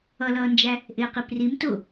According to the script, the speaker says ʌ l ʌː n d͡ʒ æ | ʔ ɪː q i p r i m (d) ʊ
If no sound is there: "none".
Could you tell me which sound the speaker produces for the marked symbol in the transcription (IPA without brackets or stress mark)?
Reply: t